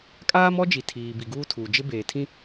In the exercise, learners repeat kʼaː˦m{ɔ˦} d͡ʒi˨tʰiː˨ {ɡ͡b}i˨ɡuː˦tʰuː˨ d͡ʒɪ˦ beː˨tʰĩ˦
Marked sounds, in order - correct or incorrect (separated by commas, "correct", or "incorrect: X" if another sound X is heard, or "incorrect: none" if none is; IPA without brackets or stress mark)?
correct, incorrect: b